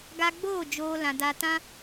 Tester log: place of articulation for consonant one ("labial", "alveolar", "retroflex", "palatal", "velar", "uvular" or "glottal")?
velar